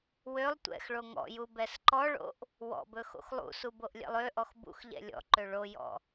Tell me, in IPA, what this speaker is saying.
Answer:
wølˠ tʷɛ̰x ɭoŋɔ̰ju bɛsǃɔɭo̰ʔ | wɔ̰bɵ xo̰xlˠṵsu boʔlʲɛ̰lˠøʔɔx bṵxʎɛ̰ lʲɔ̰ǃø ɭojɔ̰

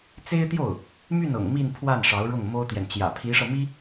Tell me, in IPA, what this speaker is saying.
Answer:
t͡se˥ɪ̯t̪jo˥˩ʊ̯ | my˥˩nɤ̰˨˩ŋ mi˥˧npʰwa˥˩n ʂɑ˧˥ʊ̯ɻʊ˥˩ŋmo˥ʊ̯t̪jɛ˨n t͡ɕjä̰˨˩pʰi˧˥ʂɤ˧mi˥

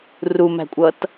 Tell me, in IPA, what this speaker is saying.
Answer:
rumæ̤kʷʼʌt

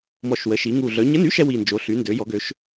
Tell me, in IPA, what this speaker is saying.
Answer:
mɔ˨˩ʃwə˩˧ʃi˩˧ŋu˨˩ ɮœ˩˧ɲə˧˥˧ny˧˥˧ʃɛ˩˧ wi˨˩nd͡ʒo˩˧ ɬy˩˧ndø˩˧ jɔ˩˧ɡø˩˧ʃ

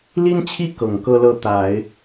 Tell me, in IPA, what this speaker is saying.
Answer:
li˥nt͡ɕʰi˥ kɤ˨˩ŋkɤ˥lɤ˥˩ t̪a˨˩˦ɪ̯

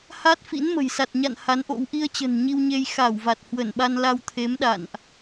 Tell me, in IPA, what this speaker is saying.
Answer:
ha˦˥t̚fḭ˧˥nmə̤˨˩jsa˨˩t̚ ɲa̰˧˨n ha˨˦nʔo̰˧˥w ʔi˧ə̯t͡ɕə̤˨˩n ɲi˧wɲe˧j xa˧˩w va˨˩t̚hwə˧˩n ɓa˧nla˧wt̪ʰe˨˦mɗa̰˧˨nʔ

